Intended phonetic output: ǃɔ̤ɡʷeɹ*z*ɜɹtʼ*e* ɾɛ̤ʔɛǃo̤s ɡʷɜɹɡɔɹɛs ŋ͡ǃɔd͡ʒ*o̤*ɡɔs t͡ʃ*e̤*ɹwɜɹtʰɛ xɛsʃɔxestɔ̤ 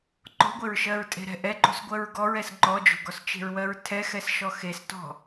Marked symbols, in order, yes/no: no, no, yes, yes

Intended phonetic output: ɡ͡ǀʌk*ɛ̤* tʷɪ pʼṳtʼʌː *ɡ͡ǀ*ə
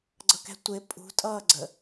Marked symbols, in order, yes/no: yes, yes

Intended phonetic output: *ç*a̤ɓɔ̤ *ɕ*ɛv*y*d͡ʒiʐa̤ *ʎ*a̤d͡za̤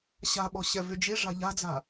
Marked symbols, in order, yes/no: no, yes, yes, yes

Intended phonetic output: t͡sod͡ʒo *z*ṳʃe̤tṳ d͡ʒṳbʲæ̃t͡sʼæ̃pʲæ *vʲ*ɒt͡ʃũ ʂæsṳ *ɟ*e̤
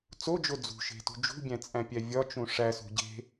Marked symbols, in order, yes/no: no, yes, yes

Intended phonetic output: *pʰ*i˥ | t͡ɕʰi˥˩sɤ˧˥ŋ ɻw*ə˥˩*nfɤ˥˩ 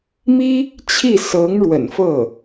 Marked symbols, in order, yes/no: no, no

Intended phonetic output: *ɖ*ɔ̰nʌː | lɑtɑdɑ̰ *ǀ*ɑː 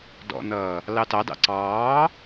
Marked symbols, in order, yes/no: no, yes

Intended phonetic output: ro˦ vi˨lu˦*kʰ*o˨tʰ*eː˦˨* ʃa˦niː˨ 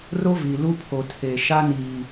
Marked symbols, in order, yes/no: no, no

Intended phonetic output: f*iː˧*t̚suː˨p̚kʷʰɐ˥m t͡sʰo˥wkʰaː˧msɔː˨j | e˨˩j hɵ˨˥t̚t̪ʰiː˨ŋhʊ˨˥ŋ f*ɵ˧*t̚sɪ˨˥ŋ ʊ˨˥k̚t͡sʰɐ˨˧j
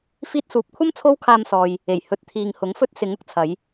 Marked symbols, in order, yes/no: yes, no

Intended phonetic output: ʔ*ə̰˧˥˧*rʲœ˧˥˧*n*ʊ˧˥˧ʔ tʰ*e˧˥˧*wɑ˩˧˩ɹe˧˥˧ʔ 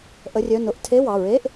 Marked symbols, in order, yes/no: no, yes, yes

